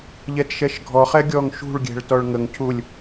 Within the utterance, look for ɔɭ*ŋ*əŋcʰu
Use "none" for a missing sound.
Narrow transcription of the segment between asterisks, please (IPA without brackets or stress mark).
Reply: ŋ